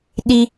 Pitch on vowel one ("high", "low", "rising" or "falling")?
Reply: high